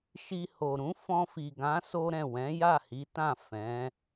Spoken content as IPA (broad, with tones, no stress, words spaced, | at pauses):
ʃi˧ho˨ ɾũ˨˦fɔ̃˧fi˨ ɡã˨˦ so˦ɾɛ̃˦˨ wɛ̃˨˦ja˦˨hi˨˦tã˦˨ fɛ̃˨˦